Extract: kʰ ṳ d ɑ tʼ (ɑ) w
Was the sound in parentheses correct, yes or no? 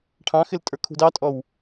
no